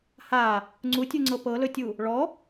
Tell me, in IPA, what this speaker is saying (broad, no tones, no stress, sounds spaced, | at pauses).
h a | ŋ͡ǀ u tʲ u ŋ͡ǀ ɤ p ɤ l ɵ tʲ u | ɭ ɔ